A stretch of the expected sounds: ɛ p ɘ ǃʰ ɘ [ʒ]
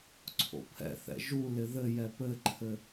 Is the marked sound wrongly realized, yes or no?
yes